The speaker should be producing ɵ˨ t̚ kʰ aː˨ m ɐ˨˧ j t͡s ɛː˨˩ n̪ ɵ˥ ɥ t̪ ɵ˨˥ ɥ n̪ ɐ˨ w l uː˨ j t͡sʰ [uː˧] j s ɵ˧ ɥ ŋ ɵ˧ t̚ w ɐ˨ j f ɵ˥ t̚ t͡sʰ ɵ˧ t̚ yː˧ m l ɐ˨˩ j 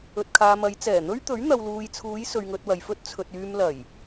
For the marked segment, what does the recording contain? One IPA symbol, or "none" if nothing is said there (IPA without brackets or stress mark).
uː˨˧